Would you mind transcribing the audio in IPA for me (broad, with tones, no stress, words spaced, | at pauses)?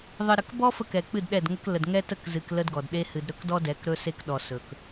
ðˤɨ˨ɾə˨k bɔ˦ fə˦kɛ˨ k͡pɨ˦˨dɗɛ˦˨dŋə˦k lə˨dŋɛ˦tə˦˨kzɨ˨k lə˦dɡɔ˨dɗe˦ hɨ˨dɾɵ˦kdɔ˦ dɛ˨˦kɾɵ˦se˦kɗɔ˨ sɵ˨k